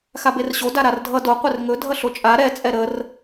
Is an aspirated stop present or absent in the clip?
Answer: absent